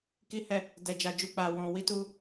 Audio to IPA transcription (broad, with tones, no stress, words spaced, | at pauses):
ki˦hɛ˦˨ | dɛ˧d͡ʒa˧d͡ʒu˧ k͡pa˧ wɔ̃˧ wi˦tu˦